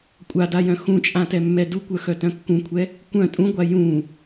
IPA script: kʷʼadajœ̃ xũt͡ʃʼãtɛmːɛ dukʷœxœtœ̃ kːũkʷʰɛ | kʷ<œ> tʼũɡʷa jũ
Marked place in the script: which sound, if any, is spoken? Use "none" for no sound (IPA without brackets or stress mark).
œ̃